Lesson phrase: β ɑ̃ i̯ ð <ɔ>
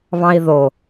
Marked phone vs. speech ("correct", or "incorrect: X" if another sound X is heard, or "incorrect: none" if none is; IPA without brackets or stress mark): incorrect: o